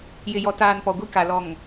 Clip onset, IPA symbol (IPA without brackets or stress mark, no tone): j